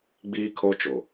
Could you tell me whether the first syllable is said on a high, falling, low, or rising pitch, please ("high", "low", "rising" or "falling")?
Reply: high